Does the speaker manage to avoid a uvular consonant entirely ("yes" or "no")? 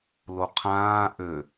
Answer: no